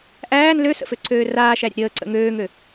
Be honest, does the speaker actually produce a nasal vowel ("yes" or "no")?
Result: no